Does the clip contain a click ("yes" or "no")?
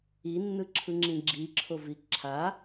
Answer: yes